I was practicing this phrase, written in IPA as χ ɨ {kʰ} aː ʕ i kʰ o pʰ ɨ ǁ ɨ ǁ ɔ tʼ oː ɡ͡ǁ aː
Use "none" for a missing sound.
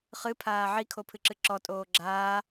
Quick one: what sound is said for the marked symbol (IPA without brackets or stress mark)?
pʰ